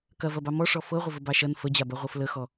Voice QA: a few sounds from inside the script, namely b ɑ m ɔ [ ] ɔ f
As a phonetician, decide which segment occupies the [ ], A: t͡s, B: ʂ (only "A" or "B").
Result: B